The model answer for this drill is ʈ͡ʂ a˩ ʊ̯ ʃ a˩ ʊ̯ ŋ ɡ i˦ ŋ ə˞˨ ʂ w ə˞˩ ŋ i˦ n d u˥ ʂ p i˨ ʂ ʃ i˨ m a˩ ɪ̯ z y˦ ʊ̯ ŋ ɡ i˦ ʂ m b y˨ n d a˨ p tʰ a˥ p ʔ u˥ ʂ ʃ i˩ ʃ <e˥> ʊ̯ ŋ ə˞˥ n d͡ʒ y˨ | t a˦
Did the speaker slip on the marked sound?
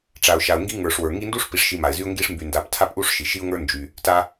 yes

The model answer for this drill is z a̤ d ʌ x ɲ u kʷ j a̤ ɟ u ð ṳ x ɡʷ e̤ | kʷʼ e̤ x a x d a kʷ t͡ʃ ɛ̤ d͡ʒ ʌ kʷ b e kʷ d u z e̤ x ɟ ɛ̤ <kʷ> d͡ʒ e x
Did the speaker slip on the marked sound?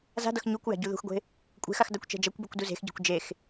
no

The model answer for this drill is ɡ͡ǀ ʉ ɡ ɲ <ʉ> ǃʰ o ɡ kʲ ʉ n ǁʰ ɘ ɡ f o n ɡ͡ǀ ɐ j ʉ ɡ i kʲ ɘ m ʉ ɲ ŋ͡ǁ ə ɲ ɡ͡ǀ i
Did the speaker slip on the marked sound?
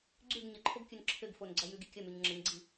yes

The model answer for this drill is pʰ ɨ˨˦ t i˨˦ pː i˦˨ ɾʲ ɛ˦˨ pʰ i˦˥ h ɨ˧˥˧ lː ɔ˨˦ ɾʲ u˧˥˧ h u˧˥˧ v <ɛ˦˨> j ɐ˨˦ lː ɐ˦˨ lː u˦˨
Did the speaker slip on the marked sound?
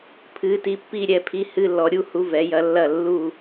yes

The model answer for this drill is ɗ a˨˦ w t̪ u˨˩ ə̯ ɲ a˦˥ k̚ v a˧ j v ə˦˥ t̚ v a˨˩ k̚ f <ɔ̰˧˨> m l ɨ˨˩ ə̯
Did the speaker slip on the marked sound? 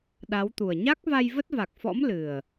yes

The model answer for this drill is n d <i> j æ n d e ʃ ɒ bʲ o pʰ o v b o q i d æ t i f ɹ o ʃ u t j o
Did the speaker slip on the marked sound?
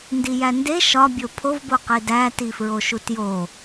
no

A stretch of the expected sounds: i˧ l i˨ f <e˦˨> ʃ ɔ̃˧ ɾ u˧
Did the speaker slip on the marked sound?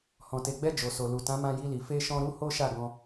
yes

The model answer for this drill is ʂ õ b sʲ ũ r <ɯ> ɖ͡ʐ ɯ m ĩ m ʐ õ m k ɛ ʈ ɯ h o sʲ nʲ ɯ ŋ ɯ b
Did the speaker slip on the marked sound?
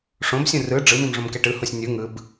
no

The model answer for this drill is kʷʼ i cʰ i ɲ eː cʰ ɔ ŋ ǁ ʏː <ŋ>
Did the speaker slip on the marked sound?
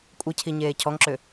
yes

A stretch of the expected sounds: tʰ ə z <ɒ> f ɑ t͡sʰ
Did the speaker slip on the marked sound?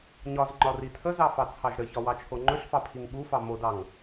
yes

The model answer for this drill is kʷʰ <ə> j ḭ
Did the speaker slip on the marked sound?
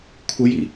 no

